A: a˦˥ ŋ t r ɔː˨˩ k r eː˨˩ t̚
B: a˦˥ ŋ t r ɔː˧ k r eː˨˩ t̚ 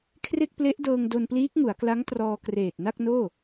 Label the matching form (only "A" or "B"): B